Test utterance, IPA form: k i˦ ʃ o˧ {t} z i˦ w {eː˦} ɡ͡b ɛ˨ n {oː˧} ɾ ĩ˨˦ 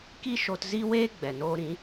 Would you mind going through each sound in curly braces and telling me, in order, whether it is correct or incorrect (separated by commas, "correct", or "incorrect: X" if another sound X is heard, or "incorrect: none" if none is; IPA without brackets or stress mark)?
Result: correct, correct, correct